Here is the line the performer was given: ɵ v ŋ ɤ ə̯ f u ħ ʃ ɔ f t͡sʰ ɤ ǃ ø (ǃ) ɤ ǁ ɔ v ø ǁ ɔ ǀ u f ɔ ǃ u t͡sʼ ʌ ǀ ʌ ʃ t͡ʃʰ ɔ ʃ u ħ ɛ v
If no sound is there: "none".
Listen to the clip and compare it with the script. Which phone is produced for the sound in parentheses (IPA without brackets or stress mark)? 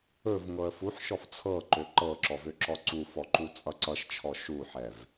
ǃ